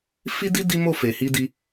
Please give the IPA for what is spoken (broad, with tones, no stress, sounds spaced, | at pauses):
f i˦ d i˦ d i˦ m o˦˨ f e˨ h i˧ d i˧